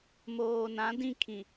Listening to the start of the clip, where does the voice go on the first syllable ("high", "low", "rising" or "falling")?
low